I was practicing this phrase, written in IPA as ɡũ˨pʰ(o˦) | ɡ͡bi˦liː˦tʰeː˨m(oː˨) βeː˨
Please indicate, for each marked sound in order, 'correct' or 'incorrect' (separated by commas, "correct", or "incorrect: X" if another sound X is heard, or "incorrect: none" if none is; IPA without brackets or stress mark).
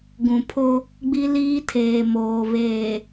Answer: correct, correct